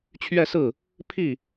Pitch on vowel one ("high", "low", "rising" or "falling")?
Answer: falling